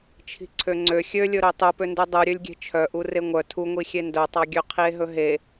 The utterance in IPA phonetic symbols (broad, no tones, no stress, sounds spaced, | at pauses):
t͡ʃʰ i̤ ǀʰ ø ŋ͡ǀ ø xʲ ø lʲ ɵ ɾ ø tˤ u p ø n d u dˤ u ɾʲ ø lʲ ɡʲ e̤ t͡ʃʰ œ ʔ u r e ŋʷ œ tʰ u ŋʷ i xʲ e n d œ tˤ ɑ ɡʲ ø qʰ i e̯ ɦ ɵ ɦ e